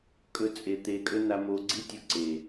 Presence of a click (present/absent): present